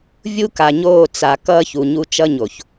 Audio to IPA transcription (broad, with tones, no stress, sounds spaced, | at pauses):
vʲ u˦ k a˨ ɲ oː˦˨ t͡s a˨ k ʌː˦ ç u˨ ɲ u˦ t͡ʃ ʌ˦ ɲ o˨ ç